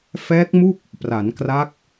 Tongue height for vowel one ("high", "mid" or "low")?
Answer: mid